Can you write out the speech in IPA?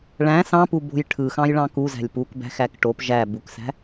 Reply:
ɭæ̃ sɑ̃pubo̤j ʈʰɯxɑ̃jɭɑ̃ kuzæ̤lʲ pukbæ̤xæk ʈop ʒæ buksæ̤

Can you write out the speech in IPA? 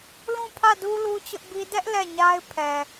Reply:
lũ˦˨pʰä˦˨du˦ lu˦t͡ɕʊ˦ʔbi˦ dɛ˦ʔ lɛ˦˨ɲa˦ɪ̯pʰɛ˨

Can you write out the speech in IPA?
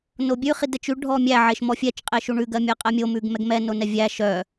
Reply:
nobʲʉ χidɛt͡ʃʉ ɖʱɔmʲæ ʕeʃmɔfʲɛt͡ʃ qʼeʃuɳʉ ɡɜmʲɛqʼɛmʲo mʉɡmɛɡmɛ nonɛvʲæ ʃœ

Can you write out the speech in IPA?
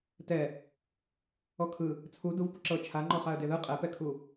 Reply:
tɛ | ɔkʰɯ | t͡sʰu duv puǁɤ t͡ʃʰaŋ͡ǃɔχaə̯ deðɯ qʼɛpɛkʰu

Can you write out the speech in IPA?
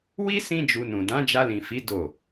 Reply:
wi˦ sĩ˦d͡ʒu˧nũ˨ dã˨˦d͡ʒa˧lĩ˨fi˨˦ do˦˨

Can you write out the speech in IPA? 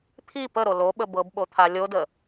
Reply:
t̪ʰi pəɾo loɓə bɤbɓot̪ʰa lʲodə

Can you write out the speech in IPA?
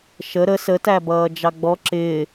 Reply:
ʃə ɾə sətæbʌːd͡ʒɑ ɡ͡bɔ ǁɪː

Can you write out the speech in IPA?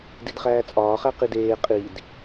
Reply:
didχæːt͡sʼɒːχæ qideː qʼid

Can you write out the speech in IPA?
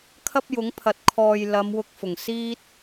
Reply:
kʰɐ˥p̚jʊ˨˥ŋpʰɐ˨t̚ kʰɔː˨j lɐ˨˧mwʊ˧k̚fʊ˨˩ŋsiː˥t̚

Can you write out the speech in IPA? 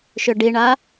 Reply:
ʃʏɖiɳa

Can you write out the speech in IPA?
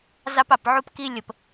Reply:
zɑ˦pɑ˨pʕu˦pki˦ lʲə˨p

